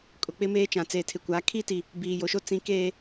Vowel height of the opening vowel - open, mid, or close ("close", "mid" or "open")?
close